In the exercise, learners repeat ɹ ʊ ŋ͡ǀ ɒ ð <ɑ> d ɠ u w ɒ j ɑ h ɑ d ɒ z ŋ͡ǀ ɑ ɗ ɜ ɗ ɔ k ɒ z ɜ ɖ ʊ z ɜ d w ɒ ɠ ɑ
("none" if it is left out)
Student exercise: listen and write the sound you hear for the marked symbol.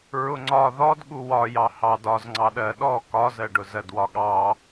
ɔ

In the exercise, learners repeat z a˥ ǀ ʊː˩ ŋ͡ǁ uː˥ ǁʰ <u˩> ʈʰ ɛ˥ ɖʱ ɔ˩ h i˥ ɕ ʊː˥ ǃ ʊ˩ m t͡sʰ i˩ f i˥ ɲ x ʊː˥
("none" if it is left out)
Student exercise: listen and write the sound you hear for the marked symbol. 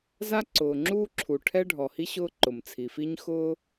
u˩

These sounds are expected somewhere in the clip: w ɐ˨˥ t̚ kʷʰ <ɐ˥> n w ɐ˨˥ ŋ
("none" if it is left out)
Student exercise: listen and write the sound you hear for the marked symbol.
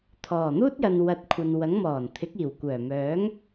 ɐ˨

